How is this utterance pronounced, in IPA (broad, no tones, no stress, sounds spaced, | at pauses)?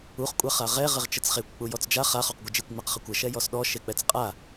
u χ kʷʼ a χ a ʁ ɛ ʁ ɘ ʁ t͡ʃ ə t͡s χ e kʷ k͡p u j ɔ t͡s d͡ʒ a χ a χ ɔ q ɡʷ ɘ d͡ʒ e kʷ ŋ͡m a q χ ɘ kʷ ə ʃ ɛ j ɔ s ɗ ɔ ʃ e k͡p ɛ t͡s qʼ a